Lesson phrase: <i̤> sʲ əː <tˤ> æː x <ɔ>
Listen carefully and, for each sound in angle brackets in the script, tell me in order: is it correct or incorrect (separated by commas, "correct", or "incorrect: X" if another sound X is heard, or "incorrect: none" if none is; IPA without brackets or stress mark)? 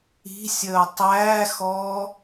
correct, correct, incorrect: ɔː